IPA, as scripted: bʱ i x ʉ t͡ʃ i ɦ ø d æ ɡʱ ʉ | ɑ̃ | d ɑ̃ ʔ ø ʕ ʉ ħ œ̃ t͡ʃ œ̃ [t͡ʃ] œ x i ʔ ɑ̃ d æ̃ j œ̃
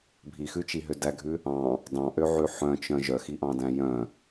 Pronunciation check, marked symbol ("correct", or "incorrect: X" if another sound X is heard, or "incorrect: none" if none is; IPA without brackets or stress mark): incorrect: ʒ